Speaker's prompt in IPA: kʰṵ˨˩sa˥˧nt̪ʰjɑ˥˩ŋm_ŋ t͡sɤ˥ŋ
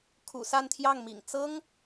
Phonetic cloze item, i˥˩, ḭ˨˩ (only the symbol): ḭ˨˩